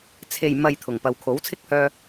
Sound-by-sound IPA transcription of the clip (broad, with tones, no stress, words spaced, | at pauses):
t͡sʰe˨jmɐ˨j t̪ʰʊ˨˩ŋpɐ˨wkʰo˨˥w t͡sʰɪ˥k̚hœː˧